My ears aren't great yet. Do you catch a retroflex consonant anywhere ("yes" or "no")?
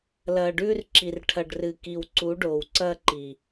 yes